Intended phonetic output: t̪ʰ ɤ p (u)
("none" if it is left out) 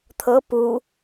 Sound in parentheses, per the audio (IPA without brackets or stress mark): u